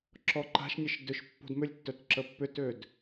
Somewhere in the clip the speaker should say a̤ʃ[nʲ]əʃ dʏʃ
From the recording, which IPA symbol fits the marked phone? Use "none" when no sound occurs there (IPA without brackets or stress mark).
nʲ